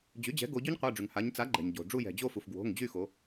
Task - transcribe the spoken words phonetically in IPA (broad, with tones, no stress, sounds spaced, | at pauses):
d͡ʑ y˩˥ d͡ʑ ɛ̤˩˥ ɡ o˩˧ ɟ y˦˥ ɲ qʷ a˩˧˩ ɖ͡ʐ y˩ ŋ h a˩˧ ɲ t͡s a˩˥ ɡ͡ǃ ɛ̤˩ ɲ ɟ o̤˩ ɖ͡ʐ u˦˨ j ɛ̤˩ d͡ʑ o˦˨ f u˩ f ɡ w o̤˩˧˩ ŋ d͡ʑ y˦˨ x o˩˧